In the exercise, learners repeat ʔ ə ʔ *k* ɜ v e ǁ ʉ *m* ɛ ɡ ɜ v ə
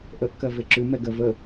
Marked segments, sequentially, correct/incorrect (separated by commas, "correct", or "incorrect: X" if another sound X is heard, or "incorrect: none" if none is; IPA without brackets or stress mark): correct, correct